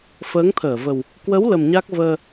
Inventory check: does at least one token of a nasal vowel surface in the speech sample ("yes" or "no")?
no